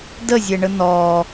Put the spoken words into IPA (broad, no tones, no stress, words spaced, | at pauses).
dəzʲɛɳə nɔ